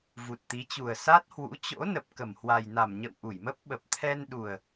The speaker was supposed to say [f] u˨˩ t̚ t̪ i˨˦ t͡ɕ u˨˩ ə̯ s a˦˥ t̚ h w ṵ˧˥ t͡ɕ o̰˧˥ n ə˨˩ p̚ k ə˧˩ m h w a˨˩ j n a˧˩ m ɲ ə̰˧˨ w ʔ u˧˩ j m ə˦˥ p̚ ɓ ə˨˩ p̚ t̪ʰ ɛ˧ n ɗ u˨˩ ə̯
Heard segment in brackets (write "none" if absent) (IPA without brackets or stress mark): v